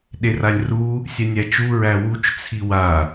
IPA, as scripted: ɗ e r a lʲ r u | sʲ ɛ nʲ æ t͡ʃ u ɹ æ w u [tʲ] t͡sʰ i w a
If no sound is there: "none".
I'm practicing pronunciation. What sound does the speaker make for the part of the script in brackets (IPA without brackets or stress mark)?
t͡ʃ